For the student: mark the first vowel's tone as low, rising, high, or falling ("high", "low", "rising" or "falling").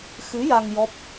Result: rising